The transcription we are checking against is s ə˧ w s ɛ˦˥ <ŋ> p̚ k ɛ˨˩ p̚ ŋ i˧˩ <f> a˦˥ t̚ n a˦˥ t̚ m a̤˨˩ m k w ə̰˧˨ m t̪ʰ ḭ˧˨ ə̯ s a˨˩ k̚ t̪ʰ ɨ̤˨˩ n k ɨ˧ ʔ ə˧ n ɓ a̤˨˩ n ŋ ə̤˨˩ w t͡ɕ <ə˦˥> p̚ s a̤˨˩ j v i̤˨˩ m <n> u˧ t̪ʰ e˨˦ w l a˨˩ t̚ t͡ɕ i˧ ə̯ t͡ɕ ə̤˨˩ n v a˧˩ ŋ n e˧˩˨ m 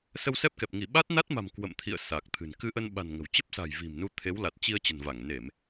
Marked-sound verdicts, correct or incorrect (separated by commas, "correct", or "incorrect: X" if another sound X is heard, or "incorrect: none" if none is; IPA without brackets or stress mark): incorrect: none, incorrect: ɓ, correct, correct